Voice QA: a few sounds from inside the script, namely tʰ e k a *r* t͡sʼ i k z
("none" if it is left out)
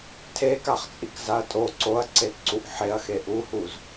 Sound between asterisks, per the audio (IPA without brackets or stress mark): χ